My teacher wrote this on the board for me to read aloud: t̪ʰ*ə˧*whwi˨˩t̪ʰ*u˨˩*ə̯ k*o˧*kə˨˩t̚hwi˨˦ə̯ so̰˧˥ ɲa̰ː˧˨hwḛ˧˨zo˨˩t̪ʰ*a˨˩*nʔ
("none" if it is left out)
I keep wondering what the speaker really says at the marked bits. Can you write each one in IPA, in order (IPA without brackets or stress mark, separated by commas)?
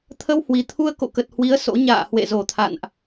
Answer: ə˧, u˧, o̰˧˨, a̰˧˨